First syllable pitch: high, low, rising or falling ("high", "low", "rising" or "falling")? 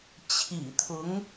low